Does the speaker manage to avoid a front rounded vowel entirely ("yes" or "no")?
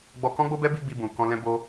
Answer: yes